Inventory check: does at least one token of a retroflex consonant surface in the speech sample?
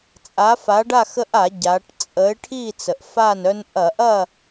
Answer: yes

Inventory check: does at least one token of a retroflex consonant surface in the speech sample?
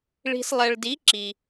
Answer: yes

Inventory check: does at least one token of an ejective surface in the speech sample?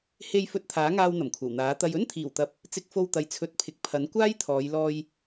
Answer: no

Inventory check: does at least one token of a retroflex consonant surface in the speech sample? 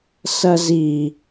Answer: no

